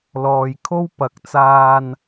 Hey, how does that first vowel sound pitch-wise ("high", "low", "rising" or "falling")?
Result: low